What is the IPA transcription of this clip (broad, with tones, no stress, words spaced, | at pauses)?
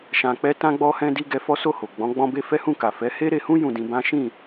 ʃã˧k͡pɛ˦ tã˧ɡ͡bɔ˧hɛ̃˧di˧ ɡɛ˧ fɔ˦so˦˨ho˨ ɡ͡bɔ̃˨˦ ɡ͡bɔ̃˧be˧ fɛ˦hũ˦˨ka˨ fɛ˨˦he˦ ɾe˧hũ˦ jũ˦˨dĩ˧bã˦ ʃĩ˦˨